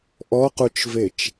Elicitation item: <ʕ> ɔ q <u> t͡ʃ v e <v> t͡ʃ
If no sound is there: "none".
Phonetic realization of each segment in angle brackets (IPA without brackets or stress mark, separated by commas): ʔ, u, none